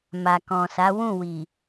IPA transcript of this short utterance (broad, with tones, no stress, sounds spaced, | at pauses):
m a˨ k ɔ̃˨ s a˨˦ w ũ˦˨ w i˨